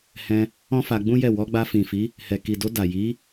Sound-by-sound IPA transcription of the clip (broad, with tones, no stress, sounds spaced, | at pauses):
h ɛ̃˧ | ɔ̃˦ f a˧ ɡ͡b ũ˦ j ɛ˦˨ w ɔ˧ ɡ͡b a˧ f ĩ˨ f i˨˦ | h ɛ˨ k i˨ d o˧ d a˨ j i˨˦